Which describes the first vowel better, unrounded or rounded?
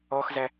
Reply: rounded